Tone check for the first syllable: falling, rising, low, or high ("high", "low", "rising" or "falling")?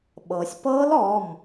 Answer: low